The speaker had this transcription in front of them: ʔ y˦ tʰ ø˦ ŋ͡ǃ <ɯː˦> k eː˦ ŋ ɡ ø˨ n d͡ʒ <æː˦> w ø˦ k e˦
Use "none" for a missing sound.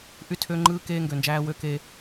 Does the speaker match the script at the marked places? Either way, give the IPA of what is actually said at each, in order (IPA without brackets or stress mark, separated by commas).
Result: ɯː˦, æː˦